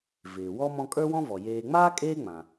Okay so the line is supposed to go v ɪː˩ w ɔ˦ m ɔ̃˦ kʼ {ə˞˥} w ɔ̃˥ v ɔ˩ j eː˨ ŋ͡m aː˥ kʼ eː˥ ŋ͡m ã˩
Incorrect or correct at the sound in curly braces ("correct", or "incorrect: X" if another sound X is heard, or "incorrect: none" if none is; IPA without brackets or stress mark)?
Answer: correct